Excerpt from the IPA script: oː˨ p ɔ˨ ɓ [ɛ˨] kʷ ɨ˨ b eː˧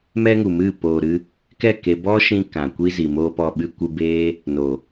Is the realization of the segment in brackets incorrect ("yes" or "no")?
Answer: yes